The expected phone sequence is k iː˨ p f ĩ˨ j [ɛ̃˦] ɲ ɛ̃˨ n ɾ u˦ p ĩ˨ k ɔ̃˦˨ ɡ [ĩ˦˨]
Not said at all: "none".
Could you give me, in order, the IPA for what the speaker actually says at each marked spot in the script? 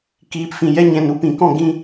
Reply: ɛ˦, ĩ˦

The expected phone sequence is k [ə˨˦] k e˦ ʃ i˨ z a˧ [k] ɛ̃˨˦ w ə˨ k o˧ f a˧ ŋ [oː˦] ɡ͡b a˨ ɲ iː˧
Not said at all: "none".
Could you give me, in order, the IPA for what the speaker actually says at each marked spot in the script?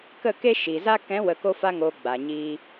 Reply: ə˦˨, k, oː˨

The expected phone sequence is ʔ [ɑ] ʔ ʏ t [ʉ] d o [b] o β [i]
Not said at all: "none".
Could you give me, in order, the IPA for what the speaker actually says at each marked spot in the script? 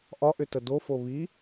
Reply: ɒ, ə, f, i

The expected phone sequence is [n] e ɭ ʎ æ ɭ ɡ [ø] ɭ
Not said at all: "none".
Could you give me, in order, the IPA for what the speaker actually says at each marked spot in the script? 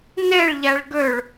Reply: n, ø

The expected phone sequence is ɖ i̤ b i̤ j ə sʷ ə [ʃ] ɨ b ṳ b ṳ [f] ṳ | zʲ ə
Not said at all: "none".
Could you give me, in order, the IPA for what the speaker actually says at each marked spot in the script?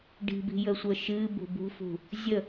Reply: ʃ, f

